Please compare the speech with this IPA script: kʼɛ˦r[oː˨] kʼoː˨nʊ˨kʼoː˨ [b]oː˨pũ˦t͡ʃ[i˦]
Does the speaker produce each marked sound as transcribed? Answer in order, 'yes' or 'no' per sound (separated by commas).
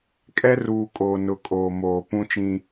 no, no, no